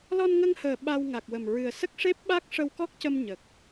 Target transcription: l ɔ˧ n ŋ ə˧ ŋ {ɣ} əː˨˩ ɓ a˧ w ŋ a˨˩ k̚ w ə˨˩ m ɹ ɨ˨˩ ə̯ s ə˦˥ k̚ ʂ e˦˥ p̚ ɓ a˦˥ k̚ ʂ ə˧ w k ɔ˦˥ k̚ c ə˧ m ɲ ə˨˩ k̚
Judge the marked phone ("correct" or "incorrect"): incorrect